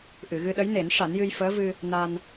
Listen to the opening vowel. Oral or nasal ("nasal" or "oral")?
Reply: oral